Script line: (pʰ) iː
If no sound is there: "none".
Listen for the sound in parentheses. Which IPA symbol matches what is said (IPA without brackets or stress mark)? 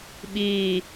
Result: ɓ